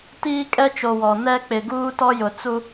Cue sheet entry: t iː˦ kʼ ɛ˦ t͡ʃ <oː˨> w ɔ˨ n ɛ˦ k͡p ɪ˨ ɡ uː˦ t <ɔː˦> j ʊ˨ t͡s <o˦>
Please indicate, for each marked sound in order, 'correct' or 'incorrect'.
incorrect, incorrect, incorrect

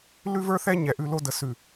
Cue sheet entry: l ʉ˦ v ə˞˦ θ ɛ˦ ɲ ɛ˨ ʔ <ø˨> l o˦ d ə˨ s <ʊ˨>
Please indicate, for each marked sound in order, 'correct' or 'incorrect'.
incorrect, incorrect

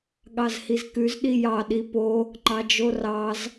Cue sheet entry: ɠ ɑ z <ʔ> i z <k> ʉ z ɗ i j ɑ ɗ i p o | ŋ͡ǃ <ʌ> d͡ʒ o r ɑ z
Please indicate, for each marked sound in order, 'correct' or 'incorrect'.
incorrect, correct, incorrect

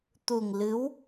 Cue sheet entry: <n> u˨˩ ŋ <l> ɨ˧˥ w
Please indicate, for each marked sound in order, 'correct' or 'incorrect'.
incorrect, correct

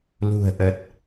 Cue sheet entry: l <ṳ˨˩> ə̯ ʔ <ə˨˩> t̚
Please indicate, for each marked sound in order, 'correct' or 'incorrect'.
correct, correct

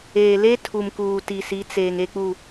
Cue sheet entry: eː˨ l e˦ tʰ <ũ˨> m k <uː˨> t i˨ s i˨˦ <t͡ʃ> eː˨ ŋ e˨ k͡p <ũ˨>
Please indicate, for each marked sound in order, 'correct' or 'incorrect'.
incorrect, correct, incorrect, incorrect

